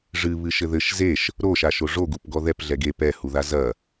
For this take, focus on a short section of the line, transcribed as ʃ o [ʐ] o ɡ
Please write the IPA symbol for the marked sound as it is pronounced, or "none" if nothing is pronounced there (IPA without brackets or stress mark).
ʐ